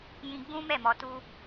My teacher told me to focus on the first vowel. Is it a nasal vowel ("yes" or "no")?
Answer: yes